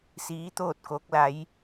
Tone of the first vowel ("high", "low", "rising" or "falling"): rising